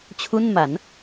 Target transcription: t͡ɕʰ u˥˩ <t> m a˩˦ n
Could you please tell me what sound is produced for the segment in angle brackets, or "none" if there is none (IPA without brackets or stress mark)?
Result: n